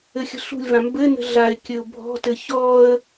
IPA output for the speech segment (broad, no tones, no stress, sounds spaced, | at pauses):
ɘ xʲ ə̤ ɬ ṳ lʲ v ã m b ɘ n ə̤ ɮ a ɪ̯ kʲ ɘ ʊ̯ bʱ ɔ̤ t ɘ ç ɔ ə̯